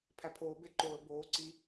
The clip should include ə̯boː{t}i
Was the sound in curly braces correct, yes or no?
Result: no